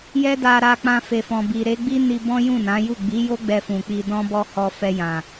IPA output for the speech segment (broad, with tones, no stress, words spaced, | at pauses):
jɛ˦da˧ɾa˧ k͡pã˧fe˨fɔ̃˨bi˨ ɾe˨˦ɡ͡bi˦ni˧bɔ̃˦ jũ˦˨nã˨˦ju˦˨ ɡ͡bi˨˦jo˦ ɡ͡bɛ˧fũ˨ k͡pi˨dɔ̃˧ bɔ˦hɔ˧ fɛ˧jã˨